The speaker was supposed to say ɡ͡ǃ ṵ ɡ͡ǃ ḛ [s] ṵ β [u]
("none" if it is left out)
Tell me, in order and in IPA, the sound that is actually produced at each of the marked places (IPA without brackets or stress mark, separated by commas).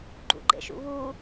ʃ, u